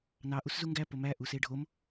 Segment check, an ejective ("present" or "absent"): absent